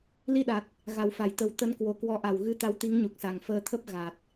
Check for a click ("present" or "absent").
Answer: absent